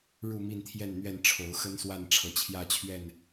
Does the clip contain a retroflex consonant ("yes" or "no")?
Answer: yes